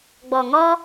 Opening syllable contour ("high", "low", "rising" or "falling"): low